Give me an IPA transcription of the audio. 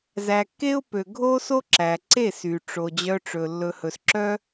zæ˨kːe˦ʊ̯pø˨ ɡʱo˦so˦ ǁæ˨ǀe˦˨sy˨ ʈ͡ʂo˨ d͡ʑœ˧ ʈ͡ʂɵ˨ lːɵ˧ hɵ˨sǁœ˦

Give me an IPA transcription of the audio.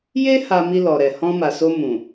je˦ ha˧mi˧lɔ˨ɾɛ˨ hɔ̃˧ma˨so˧ mũ˨

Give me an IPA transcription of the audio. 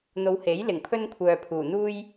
n̪o˨˧whe˨˥jlɪ˨˩ŋ pʰɵ˥nkʷʰœː˨pʰuː˨˩ n̪uː˥j

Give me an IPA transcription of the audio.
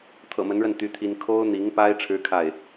t̪ʰɤ̰˨˩mə˧˥nɻə˥˩n t̪y˥t̪ʰi˥n kʰo˥ʊ̯n̪i˧˥ŋpa˥ɪ̯ ʈ͡ʂʰɻ̩˥kʰa˥˩ɪ̯

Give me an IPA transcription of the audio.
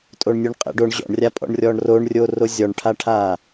tʼoɳnʲuɳqʼɛ̰ɖoɳ ʑɔ̰ɳrʲapʼɔ̰ɳ rʲɔɳroɳrʲo rozʲɔɳʈʰaʈʰa

